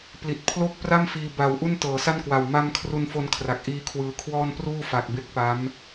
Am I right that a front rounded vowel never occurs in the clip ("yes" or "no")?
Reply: yes